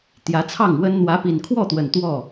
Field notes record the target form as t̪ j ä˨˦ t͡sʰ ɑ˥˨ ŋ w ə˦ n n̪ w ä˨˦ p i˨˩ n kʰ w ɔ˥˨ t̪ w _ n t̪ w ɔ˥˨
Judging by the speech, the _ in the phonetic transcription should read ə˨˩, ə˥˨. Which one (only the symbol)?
ə˨˩